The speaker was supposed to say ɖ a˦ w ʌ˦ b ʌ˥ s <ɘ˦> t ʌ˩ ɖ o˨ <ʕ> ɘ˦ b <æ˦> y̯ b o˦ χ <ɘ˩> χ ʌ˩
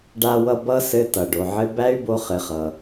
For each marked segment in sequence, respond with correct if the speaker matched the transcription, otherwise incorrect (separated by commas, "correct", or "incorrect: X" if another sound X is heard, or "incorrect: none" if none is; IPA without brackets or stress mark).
correct, correct, incorrect: æ˥, incorrect: ɘ˨